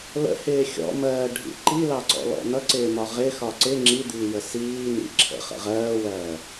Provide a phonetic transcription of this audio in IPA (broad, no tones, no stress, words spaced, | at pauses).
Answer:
lə̰hɪː xʲɔ̰mɜːɖʱḭ ǃilɑǀɔ̰lɔ̰ nʌǀɪːmɒ ʁɪxɒ ǀɪ ŋ͡ǁid̪iːjə siː nḭ ǁʰə̰χə̰ ʁɜːwɜː